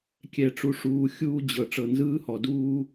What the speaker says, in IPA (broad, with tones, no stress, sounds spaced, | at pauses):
kʲ ɛ˨ ʈ͡ʂ u˨ ʂ uː˨ xʲ uː˦ d͡ʑ ɤ˨ ʈ͡ʂ ɤ˨ n z ɯː˦ h ɔ˨ d uː˦